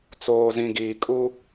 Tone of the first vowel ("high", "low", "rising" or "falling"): low